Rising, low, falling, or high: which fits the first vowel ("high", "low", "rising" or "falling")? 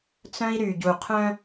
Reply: high